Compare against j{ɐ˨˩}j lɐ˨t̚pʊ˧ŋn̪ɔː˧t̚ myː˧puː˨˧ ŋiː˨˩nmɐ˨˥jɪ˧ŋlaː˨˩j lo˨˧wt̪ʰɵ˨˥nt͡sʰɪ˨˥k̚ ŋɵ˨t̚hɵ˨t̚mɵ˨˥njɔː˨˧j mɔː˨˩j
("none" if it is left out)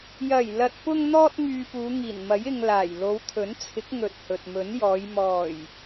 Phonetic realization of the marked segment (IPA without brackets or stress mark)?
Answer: ɐ˨˩